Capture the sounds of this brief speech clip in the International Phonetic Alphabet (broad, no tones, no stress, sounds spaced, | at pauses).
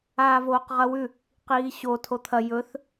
aː v oː q ʁ ɐ w ʉ | q iː ɕ o tʰ o t̪ʰ ɐ j ɵ θ